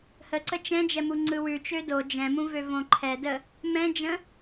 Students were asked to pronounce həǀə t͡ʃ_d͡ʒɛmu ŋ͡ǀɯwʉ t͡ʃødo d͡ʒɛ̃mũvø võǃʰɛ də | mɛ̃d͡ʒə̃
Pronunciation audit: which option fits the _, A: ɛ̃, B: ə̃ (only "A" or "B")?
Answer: A